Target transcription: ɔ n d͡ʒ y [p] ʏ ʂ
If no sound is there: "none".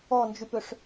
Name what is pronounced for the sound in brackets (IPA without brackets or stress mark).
p